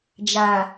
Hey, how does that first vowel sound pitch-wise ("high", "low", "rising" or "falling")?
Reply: low